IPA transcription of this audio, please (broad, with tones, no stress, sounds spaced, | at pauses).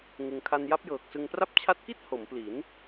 ŋ ɯ˧ ŋ kʰ a˧ n j a˦˥ p̚ j ɤː˨˩ k̚ s ɯ˧ ŋ p r a˦˥ p̚ t͡ɕʰ a˦˥ t̚ k i˥˩ t̚ h o˩˦ m p l i˩˦ n